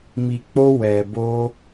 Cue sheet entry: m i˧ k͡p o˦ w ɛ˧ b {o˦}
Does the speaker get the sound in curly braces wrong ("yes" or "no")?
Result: no